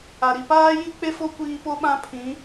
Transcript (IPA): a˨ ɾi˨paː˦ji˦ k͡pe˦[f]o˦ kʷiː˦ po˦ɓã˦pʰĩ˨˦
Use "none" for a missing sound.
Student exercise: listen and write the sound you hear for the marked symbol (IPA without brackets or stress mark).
f